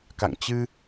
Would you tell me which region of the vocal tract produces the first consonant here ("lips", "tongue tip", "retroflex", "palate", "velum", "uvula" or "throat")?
velum